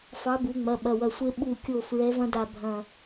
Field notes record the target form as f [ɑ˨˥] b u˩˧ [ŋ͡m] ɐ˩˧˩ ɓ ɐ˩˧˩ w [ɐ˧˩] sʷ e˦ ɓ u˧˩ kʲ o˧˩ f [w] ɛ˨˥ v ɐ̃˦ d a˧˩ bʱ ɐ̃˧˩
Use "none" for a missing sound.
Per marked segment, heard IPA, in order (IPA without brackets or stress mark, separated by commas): ɑ˨˥, ŋ͡m, ɐ˧˩, ɹ